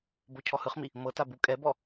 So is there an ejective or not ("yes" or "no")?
yes